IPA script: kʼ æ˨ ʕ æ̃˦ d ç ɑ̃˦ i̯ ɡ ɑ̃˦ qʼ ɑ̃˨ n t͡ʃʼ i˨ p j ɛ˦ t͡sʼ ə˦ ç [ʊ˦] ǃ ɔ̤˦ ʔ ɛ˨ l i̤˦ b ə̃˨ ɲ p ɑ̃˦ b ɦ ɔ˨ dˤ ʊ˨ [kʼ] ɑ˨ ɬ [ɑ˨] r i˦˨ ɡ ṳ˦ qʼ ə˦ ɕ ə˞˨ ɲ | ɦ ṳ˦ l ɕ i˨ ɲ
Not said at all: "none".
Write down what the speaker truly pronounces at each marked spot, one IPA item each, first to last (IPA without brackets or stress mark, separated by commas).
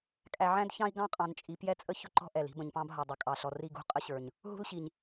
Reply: ʊ˦, kʼ, ɔ˨